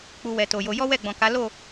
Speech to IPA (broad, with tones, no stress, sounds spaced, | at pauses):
k͡p u˧ w ɛ˨ t o˨ j o˧ j ɔ˦ w ɛ˦˨ ɡ͡b ɔ̃˨ k a˨˦ l o˦˨